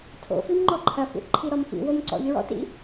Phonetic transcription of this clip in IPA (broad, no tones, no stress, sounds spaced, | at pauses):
tʰ o̰ f i m ŋ͡ǃ ɔ ǃʰ ɐ f ḭ θ ǃʰ i ɾ ɔ m f ḭ w o m ǀ ɔ̰ ʎ ɹ ɔ̰ t ḭ